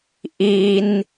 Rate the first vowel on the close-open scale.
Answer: close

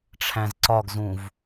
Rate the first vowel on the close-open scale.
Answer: open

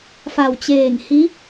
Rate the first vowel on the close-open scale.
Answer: open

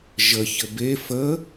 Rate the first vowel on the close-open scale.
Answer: mid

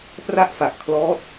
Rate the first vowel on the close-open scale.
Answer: open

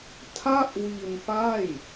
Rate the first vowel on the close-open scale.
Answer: open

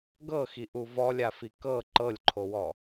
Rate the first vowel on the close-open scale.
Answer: mid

